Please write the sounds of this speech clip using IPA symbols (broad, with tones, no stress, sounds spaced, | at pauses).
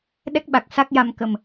ɗ ɛ˦˥ k̚ ɓ a˨˩ k̚ s a˦˥ k̚ j a˧ m k ə˨˩ m